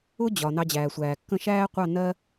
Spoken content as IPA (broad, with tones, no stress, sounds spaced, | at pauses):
ʊ˦ d͡ʑ ɒ˨ n ɑ˧ d͡ʑ æː˨ sʷ æː˨ kː ə̃˦˨ ʃ æː˦ qʷ ɑ˦˨ n ɜ˦